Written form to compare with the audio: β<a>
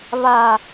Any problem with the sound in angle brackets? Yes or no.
no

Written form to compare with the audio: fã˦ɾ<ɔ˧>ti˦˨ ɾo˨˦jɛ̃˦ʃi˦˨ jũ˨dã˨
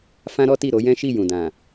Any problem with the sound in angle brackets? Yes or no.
yes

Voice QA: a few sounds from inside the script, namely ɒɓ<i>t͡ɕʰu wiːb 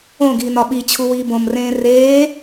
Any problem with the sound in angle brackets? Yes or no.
no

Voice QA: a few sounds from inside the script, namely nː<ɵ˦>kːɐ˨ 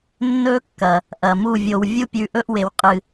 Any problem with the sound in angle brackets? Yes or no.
no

